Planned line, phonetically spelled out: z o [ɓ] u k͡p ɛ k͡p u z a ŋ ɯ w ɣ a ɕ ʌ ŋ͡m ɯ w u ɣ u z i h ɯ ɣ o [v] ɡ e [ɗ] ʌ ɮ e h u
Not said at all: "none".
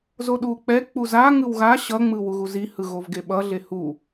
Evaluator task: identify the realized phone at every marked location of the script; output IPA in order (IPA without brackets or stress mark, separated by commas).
ɗ, v, ɓ